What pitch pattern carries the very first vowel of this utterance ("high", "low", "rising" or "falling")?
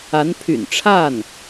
rising